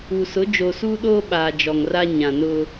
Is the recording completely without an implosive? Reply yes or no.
no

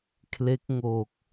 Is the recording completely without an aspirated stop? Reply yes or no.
no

